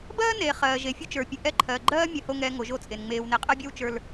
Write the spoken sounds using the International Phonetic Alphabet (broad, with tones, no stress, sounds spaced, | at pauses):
b ɜː˦ n eː˨ χ ɜː˨ ʒ e˨ fʲ o˦ t͡ʃ ə˞˨ pʲ ɨ˨ ʔ ɛ˦˨ ǃʰ ɜː˨ ɡ͡ǃ ɜː˦ mʲ ɜ˨ h o˨ ŋ ɛː˨ ŋ o˨˦ ʒ o˦ t͡sʼ e˨ n ŋ͡m eː˨ w n e˨ qʼ ɜ˦ bʲ ɜ˦ w t͡ʃ ə˞˦ l